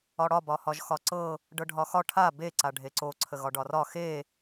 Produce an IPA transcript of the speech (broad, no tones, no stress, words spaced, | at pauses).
ɒɽɒ bɒhɒʒxɒǀɤ | ɖɤɖʱɒxɒ ʈʰa be ǀaɖʱeǀo ǀʰəɣɒɖɒrɒ xe